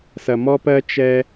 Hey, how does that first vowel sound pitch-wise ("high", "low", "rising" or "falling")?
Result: low